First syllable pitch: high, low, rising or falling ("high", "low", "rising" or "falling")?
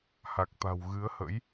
low